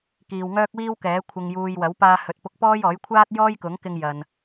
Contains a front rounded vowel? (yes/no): yes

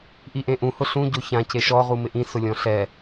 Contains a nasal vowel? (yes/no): yes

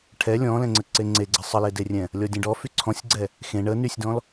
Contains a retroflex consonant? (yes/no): yes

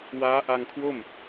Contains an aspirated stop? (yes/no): yes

